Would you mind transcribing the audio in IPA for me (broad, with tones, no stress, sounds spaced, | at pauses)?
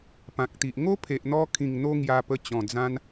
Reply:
p ã˨ k̚ t̪ i˨ ʔ ŋ o˦ pʰ e˨ ʔ n̪ ɔ˧ kʰ ĩ˨˩ ŋ n̪ o˧ ŋ j a˧ p ə˧ t͡ɕ ɔ̃˨˩ d͡z ã˦ n